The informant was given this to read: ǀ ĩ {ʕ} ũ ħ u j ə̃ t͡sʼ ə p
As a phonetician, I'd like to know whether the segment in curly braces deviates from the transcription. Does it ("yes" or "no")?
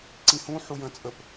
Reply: yes